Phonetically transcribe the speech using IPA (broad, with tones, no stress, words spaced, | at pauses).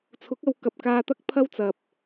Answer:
t͡sʰʊ˨˥k̚ɐ˨˧w kɐ˨p̚kaː˧t̪ɐ˥k̚ pʰɐ˥wt͡sɐ˨p̚